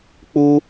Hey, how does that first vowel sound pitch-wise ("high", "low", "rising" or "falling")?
high